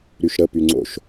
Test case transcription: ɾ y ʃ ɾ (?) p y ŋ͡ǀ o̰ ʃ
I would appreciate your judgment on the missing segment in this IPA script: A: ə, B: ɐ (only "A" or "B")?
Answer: A